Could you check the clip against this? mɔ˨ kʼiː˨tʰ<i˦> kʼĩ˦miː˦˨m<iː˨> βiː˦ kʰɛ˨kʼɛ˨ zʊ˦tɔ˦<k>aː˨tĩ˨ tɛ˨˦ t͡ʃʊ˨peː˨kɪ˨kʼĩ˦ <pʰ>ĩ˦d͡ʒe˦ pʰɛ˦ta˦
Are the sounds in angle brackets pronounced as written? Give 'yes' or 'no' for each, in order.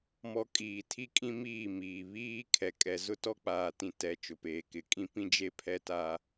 yes, yes, no, no

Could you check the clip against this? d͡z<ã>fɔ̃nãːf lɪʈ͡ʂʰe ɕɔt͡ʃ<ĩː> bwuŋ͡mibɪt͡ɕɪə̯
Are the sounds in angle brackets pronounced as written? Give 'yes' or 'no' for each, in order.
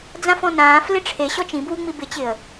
yes, no

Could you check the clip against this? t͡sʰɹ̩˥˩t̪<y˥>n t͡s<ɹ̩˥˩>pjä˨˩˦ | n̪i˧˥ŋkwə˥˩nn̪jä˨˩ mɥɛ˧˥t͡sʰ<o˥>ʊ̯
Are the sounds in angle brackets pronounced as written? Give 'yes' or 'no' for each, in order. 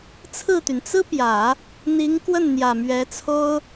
no, no, yes

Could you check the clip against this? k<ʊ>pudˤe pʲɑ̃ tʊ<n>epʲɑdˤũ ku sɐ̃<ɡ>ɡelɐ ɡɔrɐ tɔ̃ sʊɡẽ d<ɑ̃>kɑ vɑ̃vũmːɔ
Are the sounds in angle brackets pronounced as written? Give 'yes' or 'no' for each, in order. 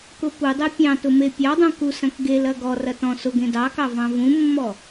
yes, no, no, no

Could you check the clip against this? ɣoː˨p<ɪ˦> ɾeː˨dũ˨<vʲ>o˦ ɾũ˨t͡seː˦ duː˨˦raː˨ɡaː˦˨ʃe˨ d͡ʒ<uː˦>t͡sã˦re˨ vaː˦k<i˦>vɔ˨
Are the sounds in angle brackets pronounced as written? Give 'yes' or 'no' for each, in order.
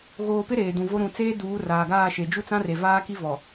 yes, no, no, yes

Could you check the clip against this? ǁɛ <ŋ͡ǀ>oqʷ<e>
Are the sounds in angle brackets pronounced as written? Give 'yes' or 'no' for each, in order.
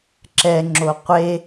no, yes

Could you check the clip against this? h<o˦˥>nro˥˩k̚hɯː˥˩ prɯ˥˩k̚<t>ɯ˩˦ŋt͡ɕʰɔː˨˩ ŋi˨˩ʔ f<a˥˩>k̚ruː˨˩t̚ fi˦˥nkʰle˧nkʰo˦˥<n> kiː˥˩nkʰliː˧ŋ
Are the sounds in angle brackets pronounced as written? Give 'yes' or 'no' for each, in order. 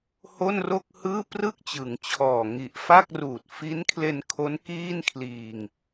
no, no, yes, yes

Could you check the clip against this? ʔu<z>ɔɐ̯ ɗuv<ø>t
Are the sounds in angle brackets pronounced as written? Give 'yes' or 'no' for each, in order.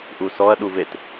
no, no

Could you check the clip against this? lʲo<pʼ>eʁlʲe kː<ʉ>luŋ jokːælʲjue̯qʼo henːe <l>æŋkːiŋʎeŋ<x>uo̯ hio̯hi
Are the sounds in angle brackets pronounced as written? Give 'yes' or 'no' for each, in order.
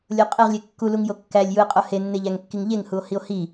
no, no, no, no

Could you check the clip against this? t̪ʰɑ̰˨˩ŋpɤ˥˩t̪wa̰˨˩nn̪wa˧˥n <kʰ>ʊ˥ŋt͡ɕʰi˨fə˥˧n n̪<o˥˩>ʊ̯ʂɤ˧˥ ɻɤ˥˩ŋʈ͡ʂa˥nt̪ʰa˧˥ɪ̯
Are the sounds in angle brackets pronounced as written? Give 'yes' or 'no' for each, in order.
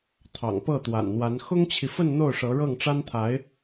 no, yes

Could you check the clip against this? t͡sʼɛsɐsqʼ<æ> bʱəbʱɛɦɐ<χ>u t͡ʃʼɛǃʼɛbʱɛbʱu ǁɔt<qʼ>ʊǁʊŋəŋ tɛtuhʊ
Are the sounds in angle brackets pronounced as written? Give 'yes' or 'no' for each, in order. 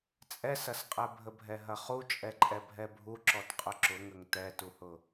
no, yes, yes

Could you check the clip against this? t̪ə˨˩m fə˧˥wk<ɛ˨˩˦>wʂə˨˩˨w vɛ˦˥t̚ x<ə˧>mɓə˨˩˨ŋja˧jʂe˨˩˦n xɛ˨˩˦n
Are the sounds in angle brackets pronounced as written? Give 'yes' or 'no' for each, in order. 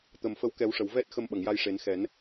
yes, yes

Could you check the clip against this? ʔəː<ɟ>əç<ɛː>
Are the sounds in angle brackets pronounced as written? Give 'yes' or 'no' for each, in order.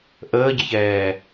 yes, yes

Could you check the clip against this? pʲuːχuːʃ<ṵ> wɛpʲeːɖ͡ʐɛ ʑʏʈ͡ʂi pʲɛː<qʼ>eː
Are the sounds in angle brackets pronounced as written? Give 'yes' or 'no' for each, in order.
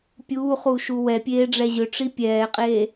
no, yes

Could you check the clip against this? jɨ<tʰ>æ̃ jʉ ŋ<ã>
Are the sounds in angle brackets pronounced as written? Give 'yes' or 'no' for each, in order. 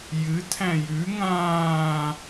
yes, no

